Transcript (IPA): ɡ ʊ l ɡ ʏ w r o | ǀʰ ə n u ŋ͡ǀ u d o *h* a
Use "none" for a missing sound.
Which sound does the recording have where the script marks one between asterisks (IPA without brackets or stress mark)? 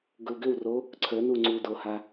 h